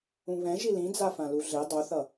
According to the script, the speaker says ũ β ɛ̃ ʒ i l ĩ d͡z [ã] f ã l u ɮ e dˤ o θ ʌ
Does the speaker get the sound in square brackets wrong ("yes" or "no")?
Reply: yes